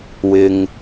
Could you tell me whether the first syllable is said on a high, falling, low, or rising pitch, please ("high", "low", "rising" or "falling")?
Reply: low